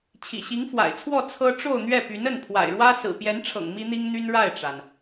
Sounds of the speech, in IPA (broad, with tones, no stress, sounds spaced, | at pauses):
t͡ɕʰ ḭ˨˩ ɕ i˧˥ ŋ f w a̰˨˩ ɪ̯ t͡sʰ w ɔ˥˩ t͡sʰ ɤ˥ ʈ͡ʂ o˥˧ ʊ̯ n̪ ɥ ɛ˥˩ p y˧˥ n ə˥˩ n pʰ w a̰˨˩ ɪ̯ ɻ w ä˥ s ɹ̩˨˩ p j ɛ˧˥ n ʈ͡ʂʰ ɤ̰˨˩ ŋ m i˥ n̪ i˥ ŋ n̪ y˥ n ɻ a˥˩ ɪ̯ ʈ͡ʂ a˩ n